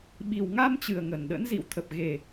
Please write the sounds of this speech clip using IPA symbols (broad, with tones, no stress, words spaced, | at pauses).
ɓi˨˩wŋa˧mt͡ɕɨ˨˩ə̯ ŋə˨˩nɗə̰˧˥n zḭ˧˨w t̪ʰə˨˩p̚ɣe˨˩